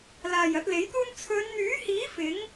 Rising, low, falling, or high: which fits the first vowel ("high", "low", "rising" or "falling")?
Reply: low